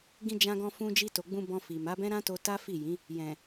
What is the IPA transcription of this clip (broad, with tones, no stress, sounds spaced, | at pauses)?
ɡ ĩ˧ d͡ʒ ã˧ ɡ ɔ̃˧ f ũ˧ d͡ʒ i˧ t o˨ ɡ͡b ũ˧ b ɔ̃˧ f i˨ m a˨˦ b ɛ̃˦ ɾ ã˦ t o˧ t a˦ f i˦˨ j ĩ˨˦ | j ɛ̃˨